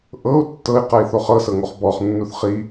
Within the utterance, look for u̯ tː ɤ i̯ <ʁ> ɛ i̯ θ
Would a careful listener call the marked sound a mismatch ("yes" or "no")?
yes